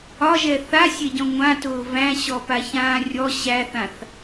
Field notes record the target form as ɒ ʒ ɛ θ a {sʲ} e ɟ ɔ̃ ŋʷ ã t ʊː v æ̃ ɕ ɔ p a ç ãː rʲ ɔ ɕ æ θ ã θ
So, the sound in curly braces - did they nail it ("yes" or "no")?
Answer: yes